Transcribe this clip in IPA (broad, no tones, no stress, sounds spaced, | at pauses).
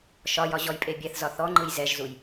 ʃ ɒ j ɒ ʑ ɔ j pʼ e bʲ ɛ θ z ɒ θ ɔ ŋ͡ǃ ɯ j z ɛ ʒ z u j